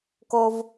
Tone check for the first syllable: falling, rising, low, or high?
high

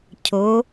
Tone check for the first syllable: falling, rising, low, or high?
rising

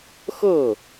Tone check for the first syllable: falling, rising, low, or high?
falling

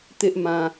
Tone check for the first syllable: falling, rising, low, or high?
high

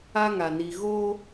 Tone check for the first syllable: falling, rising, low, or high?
high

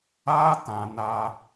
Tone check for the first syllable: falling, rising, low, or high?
high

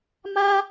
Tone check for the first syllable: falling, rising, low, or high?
high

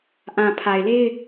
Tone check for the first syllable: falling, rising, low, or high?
low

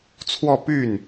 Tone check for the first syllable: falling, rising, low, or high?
falling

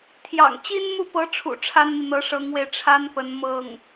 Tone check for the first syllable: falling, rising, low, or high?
low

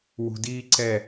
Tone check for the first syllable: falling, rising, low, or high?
low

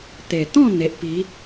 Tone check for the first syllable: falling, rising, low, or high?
low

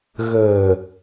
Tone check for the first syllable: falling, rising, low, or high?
low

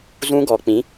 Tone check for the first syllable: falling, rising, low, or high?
high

